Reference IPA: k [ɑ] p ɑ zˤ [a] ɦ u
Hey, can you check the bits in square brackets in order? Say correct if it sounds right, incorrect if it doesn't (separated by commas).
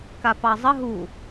incorrect, incorrect